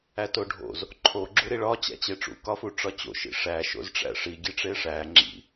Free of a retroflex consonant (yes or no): no